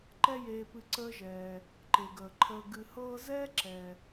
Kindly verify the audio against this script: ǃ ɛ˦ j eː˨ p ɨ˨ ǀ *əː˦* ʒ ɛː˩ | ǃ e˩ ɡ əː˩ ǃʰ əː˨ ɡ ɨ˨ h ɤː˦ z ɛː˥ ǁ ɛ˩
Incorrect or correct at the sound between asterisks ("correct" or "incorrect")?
correct